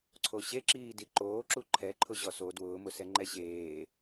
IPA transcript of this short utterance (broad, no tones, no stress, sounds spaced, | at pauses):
ǀʰ o ɕ e ǁ iː d i ǃ oː ǁ u ǃʰ ɛ ǃʰ ʊ ʑ ɔ s o d w ʊː m ʊ s ɛ ŋ͡ǃ ɛ ɕ eː